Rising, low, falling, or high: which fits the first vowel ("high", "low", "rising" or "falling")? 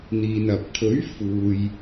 low